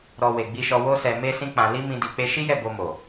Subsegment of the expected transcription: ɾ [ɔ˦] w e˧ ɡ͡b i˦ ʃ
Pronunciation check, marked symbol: incorrect: ɔ˧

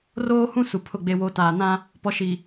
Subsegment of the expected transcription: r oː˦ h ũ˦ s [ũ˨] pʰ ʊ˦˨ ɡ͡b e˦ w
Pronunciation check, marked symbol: incorrect: u˨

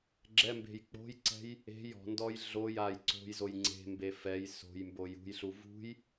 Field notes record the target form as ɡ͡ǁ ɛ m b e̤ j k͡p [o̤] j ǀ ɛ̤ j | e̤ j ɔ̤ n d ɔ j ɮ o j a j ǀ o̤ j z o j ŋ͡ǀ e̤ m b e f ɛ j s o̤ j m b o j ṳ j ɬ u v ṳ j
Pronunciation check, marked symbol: correct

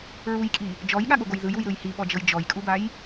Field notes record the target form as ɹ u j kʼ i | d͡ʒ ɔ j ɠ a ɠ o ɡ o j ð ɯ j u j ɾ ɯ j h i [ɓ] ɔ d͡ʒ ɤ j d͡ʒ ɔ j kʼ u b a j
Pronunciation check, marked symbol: correct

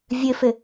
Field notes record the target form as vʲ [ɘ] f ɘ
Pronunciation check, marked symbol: correct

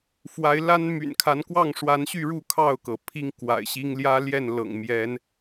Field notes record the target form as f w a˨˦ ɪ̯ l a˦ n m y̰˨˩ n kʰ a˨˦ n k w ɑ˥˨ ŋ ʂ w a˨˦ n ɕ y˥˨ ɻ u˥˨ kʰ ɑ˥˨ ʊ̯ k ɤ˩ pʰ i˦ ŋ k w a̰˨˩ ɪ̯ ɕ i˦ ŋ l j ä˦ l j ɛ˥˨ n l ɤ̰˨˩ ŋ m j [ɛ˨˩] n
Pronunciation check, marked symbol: incorrect: ɛ˨˦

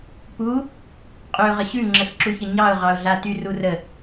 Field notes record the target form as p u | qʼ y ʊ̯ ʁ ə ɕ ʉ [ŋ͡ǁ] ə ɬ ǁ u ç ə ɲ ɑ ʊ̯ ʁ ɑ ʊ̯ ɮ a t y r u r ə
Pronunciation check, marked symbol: correct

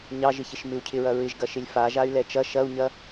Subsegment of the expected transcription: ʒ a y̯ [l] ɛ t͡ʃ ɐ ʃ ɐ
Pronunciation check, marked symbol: correct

